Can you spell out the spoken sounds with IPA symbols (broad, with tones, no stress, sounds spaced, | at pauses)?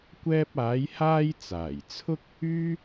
kʷ ɛː˧ p̚ aː˨˧ j h aː˧ j t͡s aː˨˩ j t͡sʰ ʊ˥ k̚ | yː˥